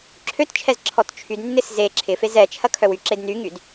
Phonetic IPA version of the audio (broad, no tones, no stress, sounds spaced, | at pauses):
ǁʰ ø t t͡ʃʰ ɛ z ǁʰ ɔ t t͡ʃʰ y d nː ɪ s z e ǁʰ ɪ f e z ɛ t͡ʃʰ ɐ kʰ œ w y ǁ e d n y ŋ y d